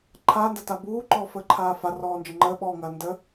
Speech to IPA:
ǃʰ aː n d ɐ t a b uː ǃ ɔː f əː ǃʰ aː f a r ɔː n d͡ʒ ə ŋ͡ǃ əː ɓ ɔː ŋ ɐː n d ə

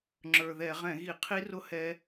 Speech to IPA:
ŋ͡ǁ ə˞˨˩ ð ɛ˧˩˧ ʁ ɛ̃˧˩˧ ɣ i˧˩˧ qʰ i˦˥ r ʊ˦˥ h ɛ˦˥

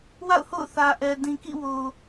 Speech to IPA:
w a̰˦˨ ʊ̯ h o̰˦˨ ʊ̯ θ ä˨ ʔ ɛ˨ d ĩ˨ k ḭ˦˨ w o˨

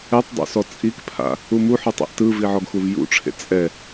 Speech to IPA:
ɛ tˤ dˤ ṵ s ɔ t͡sʼ i k pʰ a̰ | u m u ħ ɯ tˤ ḛ ʔ t ɯ v i ʕ ɔ ɡ x u v j ṵ ʈ͡ʂʰ ḛ t͡sʼ ɛ

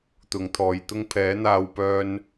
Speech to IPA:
t̪ ʊ˨˥ ŋ t̪ʰ ɔː˨˧ j t̪ ʊ˥ ŋ pʰ ɛː˨˥ n̪ aː˧ w p œː˥ n

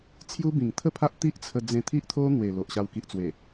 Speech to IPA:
t͡sʰ j u˦ b ĩ˨˩ ŋ t̪ʰ ə˥˧ pʰ a˦ ʔ t̪ i˦ ʔ t͡sʰ ə˧ d͡z ẽ˧ t̪ʰ i˦ ʔ t̪ʰ o˦ n̪ w e˨˩ l o˨ ʔ ɕ a˧ w k i˨ ʔ t͡s w e˨˩

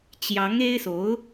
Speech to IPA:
t͡ɕ j ɑ˧˥ ŋ e˥ ɪ̯ s o˧˥ ʊ̯

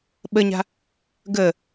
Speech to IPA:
ɓ ə ɲ a̤ | ɡ ə

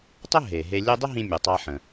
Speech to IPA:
tˤ ə˥ ɦ e˩ ɦ e˧ lʲ e˥ dˤ ɪ˥ ɦ ĩ˧ mʲ u˩ tˤ a˧ ħ ə̃˩

